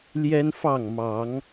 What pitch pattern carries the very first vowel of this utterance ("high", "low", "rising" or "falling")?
high